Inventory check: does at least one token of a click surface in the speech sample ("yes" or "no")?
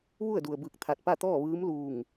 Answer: no